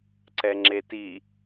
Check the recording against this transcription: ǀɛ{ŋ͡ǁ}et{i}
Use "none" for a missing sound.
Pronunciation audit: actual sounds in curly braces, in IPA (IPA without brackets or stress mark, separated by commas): ŋ͡ǁ, i